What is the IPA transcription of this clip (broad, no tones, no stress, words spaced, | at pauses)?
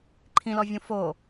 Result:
ǃʰĩlɔvʲũ fo